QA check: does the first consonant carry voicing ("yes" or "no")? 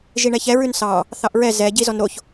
yes